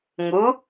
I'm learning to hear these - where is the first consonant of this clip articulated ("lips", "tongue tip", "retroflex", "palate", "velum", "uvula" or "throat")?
velum